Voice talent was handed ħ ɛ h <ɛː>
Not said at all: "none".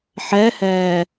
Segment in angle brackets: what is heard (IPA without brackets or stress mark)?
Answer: ɛː